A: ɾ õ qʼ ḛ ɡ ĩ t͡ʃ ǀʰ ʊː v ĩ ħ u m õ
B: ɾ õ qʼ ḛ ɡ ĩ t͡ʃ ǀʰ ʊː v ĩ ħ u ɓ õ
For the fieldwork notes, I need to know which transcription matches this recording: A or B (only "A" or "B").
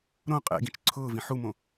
A